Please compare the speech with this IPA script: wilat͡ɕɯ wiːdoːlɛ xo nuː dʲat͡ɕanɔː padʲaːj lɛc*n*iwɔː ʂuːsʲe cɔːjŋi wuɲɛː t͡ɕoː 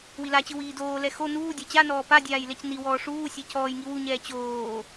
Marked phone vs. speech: correct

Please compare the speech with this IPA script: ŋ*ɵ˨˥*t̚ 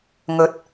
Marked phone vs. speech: incorrect: ɵ˨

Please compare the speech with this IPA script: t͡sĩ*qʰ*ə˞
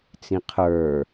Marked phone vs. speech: correct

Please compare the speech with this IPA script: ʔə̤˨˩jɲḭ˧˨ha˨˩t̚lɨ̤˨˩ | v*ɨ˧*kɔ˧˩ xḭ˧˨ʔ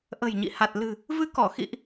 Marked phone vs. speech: correct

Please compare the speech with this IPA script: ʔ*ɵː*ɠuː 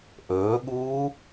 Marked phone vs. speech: correct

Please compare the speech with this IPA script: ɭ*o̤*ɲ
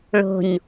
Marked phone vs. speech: correct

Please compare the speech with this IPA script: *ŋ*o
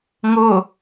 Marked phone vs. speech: correct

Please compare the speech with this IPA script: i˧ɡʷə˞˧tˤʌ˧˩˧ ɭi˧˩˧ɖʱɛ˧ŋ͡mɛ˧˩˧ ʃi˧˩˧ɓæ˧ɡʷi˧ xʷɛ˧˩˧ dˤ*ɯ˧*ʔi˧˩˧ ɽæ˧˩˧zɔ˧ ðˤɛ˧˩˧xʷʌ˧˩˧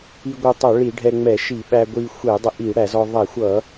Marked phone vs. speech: incorrect: ə˧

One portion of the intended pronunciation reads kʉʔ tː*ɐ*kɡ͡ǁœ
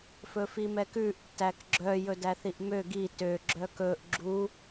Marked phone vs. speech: incorrect: æ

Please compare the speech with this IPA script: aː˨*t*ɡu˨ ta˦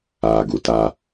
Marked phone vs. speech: incorrect: none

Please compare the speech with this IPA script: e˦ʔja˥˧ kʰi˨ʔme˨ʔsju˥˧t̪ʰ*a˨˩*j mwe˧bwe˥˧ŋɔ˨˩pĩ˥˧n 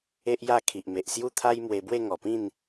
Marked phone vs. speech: incorrect: a˦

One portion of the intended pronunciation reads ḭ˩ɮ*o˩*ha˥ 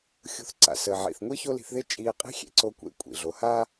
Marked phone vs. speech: correct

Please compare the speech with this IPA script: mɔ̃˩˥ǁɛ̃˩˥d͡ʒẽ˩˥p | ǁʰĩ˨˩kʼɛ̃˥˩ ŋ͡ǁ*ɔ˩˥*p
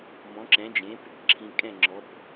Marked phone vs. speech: correct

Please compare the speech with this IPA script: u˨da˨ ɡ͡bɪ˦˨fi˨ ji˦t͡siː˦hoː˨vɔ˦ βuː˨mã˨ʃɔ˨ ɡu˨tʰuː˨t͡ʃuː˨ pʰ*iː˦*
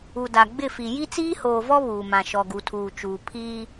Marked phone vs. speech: correct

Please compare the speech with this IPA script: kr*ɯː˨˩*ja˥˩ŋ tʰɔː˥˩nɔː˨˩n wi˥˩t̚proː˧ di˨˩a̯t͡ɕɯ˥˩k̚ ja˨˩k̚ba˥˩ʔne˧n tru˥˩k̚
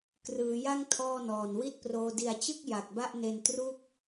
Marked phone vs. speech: incorrect: ɯː˩˦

